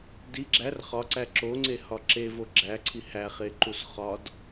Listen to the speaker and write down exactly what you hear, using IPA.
d i ɡ͡ǁ æ r χ ɒ ǀ æ ǁ o ŋ͡ǀ e h ɒ ǁ e v o ɡ͡ǁ æ ǀʰ i h æ χ e ǃ u s χ ɒ d

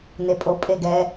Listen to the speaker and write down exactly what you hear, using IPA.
n e pʼ o pʼ e ɡ ɛ

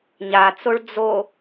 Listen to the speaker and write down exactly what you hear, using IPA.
ɲ a t͡s o ɭ d͡z o

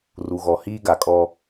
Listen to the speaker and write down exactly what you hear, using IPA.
r u˨ ɣ ɔ˨ h iː˦ ɡ a˨ kʼ ɔ˦

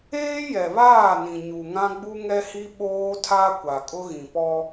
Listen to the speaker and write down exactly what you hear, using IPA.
eː˦ j ɛ˨ β aː˦˨ n ĩ˨ ɲ u˨ ŋ ã˦ ɡ͡b u˦ ŋ ɛ˦ h i˦ ɓ oː˦ tʰ a˦ kʷ a˨ kʼ ʊ˦ ɣ ĩ˨ p ɔ˦

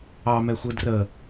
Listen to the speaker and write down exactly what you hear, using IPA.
ɑ m ɛ xʷ ɯ d r ə

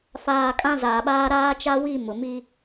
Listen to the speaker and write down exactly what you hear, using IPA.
f aː˨ kʼ ã˦ z aː˨ ɓ aː˦ ɾ aː˦ t͡ʃ a˦ w i˦˨ m ʊ˨ m i˦

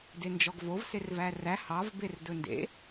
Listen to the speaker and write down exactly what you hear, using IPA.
d e n d͡ʒ ɔ ɡ v o v s e r v æ r æ h ɑ v b e r d ɵ n d ḛ

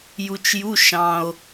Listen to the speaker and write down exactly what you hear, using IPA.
j u˧ t͡ʃ j u˧˥˧ ʃ ɑ̃˧ o̯

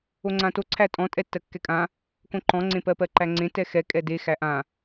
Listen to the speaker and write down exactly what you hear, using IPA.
o ŋ͡ǀ ã t o ǀʰ æ tʼ ɔ̃ tʼ ɛ tː ɜ kː ɛ kʼ ã | k õ ǃ ɔ̃ ŋ͡ǀ ẽ p ɜ p ɜ ǃ æ ŋ͡ǀ ẽ t ɛ x ɛ kʼ ɛ d e x æ ʔ ã

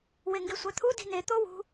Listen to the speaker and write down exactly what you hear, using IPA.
w e ŋ ɡ e sʷ æ t̪ʰ u d i̤ n e t̪ o w ṳ

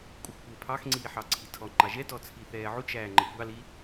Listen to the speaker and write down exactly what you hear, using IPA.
kʷʼ ɪ xʷ kʷ ɪː pʰ ɑ x ŋ͡ǀ iː ħ ɑ ǀʰ i tʰ ɔ ŋ͡ǃ ɑ ʒ ɛ t ɔ t͡sʰ i θ ɛː ʕ u t͡ʃ æː ŋ͡ǃ ə kʷ ɑ l i

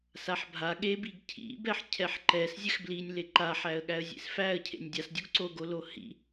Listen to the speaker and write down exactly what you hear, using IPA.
s a ħ bʱ a ɠ e b i ɡ cʰ ḭ b ɛ ħ cʰ ɛ ħ ǃ ɛ s zʲ ɛ x b l i nʲ l e ǃ a ħ æ ə̯ ɠ æ ə̯ zʲ ḛ s f æ ə̯ cʰ ḛ nʲ dʲ a s dʲ o ɡ ǀ o ɡ o l o h ḭ

